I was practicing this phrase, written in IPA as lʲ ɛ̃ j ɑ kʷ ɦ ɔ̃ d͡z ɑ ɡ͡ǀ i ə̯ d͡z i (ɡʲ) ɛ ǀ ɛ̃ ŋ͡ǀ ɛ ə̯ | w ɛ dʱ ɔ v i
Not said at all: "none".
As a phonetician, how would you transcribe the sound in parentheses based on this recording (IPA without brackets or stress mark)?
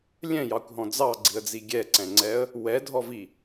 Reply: ɡʲ